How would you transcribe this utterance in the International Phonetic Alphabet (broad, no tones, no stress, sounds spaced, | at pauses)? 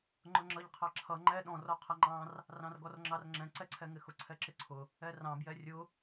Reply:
ŋ͡ǃ ʊ ŋ͡ǁ ʌ ʎ qʰ ɑ ǁʰ ʌ ŋ͡ǃ ɛ ɗ ɔ̃ r ɔ qʰ ʌ ŋ͡ǃ ɑ̃ r | r ɑ̃ r ɡ ɔ r ŋ͡ǁ ɑ r ŋ͡ǁ ɛ̃ ǀ ɛ ǀʰ ɛ ŋ ɪ x ʊ ǀʰ ɛ ǁ ɪ ǀʰ ʊ | ɛ r ɑ̃ b j ɛ rʲ ʊ